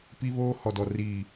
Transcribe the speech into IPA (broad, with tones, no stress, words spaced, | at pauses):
pi˦βoː˦ hɔ˨dɔ˨ riː˨